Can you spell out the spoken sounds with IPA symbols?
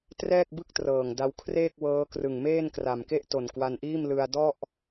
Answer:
t r ɛː˥˩ k̚ b ɯ˥˩ k̚ t r ɤː˨˩ ŋ d a˧ w kʰ r eː˥˩ k̚ w ɤː˦˥ k r ɯ˨˩ ŋ m eː˥˩ n k r a˨˩ m k e˥˩ ʔ t o˨˩ n k w a˧ n ʔ iː˥˩ m l ɯ˧ a̯ d ɔ˥˩ ʔ

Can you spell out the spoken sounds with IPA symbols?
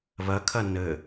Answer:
β ɜ kʰ ɜ n ɘ

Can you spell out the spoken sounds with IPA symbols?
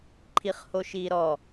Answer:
ǃʰ i χ h o ʃ iː ɾ ɔ

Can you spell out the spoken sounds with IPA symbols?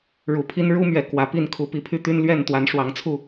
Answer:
ɻ u˨˩ pʰ i˦ n ɻ u˦ m ɥ ɛ˨˩ k w ä˨˦ p i˥˨ n kʰ u˨˦ p i˨˦ pʰ y˦ t̪ y˦ n l ɥ ɛ˥˨ n t̪ w a˨˦ n ʂ w ɑ˨˦ ŋ t͡sʰ u˥˨

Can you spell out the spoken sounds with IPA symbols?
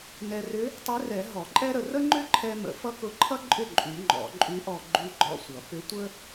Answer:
n ɛ˧ r ʏ˧˥ | tˤ ʏ˧˥ r ɛ˨˩˦ ɦ ɔ˨˩˦ ǃʼ ɛ˥ ɾ ə˧ r ə˥ ŋ͡ǃ ʏ˥ ǃʰ ɛ˧ m ə̰˨˩˦ f ʌ˥ k ʊ˧˥ ǃʰ ʌ˥ ǃʼ ʏ˥˩ ǃʼ y˨˩˦ ŋ͡ǃ ɔ̰˨˩˦ ǃʼ y˧˥ ʔ ɔ˧ ɡ͡ǃ y˧ ɡ͡ǃ ɔ̰˥˩ sʷ ʌ˨˩˦ p ʏ˧˥ tʷ ə˥

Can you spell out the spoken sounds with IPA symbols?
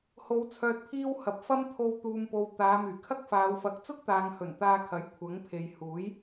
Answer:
h o˨˧ w t͡sʰ œː˨ t̚ pʰ iː˧ w h ɐ˨ p̚ f ɐ˥ m t̪ʰ o˧ w t̪ uː˨ m p o˨ w t̪ aː˨˧ m yː˨˩ kʰ ɐ˥ k̚ f aː˨˧ w f ɐ˨˥ k̚ t͡s ʊ˥ k̚ t̪ aː˨ ŋ h ɵ˨˩ n t̪ aː˧ kʰ ɐ˨˥ j kʷʰ ɐ˨˥ ŋ pʰ e˨ j h uː˨˥ j

